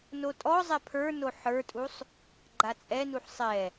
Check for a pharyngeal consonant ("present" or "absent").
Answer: present